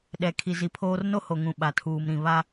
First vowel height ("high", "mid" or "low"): mid